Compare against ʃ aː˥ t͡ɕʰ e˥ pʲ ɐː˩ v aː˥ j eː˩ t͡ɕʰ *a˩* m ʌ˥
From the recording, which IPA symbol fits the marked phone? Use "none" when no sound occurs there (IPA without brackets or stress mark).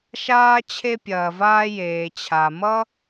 a˩